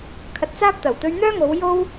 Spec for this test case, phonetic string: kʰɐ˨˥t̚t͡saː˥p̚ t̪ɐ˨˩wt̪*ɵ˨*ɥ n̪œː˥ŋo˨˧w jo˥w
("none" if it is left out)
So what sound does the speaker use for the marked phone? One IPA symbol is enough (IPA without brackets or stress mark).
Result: ɵ˥